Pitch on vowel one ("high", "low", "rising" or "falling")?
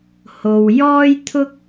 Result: low